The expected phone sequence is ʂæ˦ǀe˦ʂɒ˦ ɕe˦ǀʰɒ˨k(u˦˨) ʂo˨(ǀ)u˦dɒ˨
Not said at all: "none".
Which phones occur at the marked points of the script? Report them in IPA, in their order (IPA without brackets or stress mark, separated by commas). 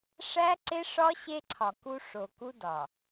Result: u˦, k